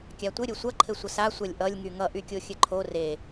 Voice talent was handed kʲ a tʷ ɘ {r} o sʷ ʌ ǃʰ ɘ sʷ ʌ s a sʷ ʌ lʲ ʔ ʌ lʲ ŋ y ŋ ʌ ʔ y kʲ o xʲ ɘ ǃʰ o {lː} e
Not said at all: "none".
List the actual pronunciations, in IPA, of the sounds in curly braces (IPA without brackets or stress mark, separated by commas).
ɾʲ, r